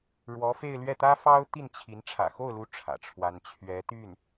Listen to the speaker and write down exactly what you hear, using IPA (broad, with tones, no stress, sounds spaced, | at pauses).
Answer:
ɻ w ɔ˧˥ f e˥˧ ɪ̯ l ɥ ɛ˥˩ t̪ ä˥ f ɑ˥ ʊ̯ t̪ i˥˩ n t͡ɕʰ i˧˥ n ʈ͡ʂʰ ä̰˨˩ x o˥˩ ʊ̯ l u˧˥ ʈ͡ʂʰ ä̰˨˩ ʈ͡ʂʰ w a˥ n t͡ɕʰ ɥ ɛ˧˥ t̪ y˥˩ n